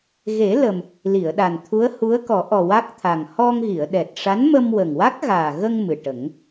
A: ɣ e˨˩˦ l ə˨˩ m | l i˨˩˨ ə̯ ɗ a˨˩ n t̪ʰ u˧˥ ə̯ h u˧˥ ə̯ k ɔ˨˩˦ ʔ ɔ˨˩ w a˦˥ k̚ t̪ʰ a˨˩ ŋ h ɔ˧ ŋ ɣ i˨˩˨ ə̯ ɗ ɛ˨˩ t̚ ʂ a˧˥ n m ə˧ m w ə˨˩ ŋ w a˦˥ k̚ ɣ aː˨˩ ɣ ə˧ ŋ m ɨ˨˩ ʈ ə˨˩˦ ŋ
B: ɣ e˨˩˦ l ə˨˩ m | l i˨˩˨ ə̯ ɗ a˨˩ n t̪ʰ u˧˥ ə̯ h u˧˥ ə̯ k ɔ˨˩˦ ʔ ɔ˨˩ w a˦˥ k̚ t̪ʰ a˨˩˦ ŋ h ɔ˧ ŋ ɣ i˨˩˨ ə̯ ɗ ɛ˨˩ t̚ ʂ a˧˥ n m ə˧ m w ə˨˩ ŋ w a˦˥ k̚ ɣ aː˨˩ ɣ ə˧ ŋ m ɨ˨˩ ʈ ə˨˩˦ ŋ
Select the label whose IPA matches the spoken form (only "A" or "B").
A